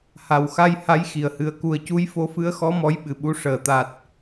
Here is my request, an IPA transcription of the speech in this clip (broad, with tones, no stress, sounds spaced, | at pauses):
h a˨˩ w x a˧ j h a˧˥ j x i˨˩ ə̯ h ɨ˨˩ ə̯ k u˨˩ ə̯ c u˧˥ j f o˧˥ f ɨ˧˥ ə̯ x ɔ˧˥ m ɔ˧˥ j ɓ ɨ˨˩˨ ɓ u˧˥ ʂ əː˨˩˨ t̪ a˨˩ t̚